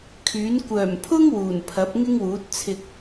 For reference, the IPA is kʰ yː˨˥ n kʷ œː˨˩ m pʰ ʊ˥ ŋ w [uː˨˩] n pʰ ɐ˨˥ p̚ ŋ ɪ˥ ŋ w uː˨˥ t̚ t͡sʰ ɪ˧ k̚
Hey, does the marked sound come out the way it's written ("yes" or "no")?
yes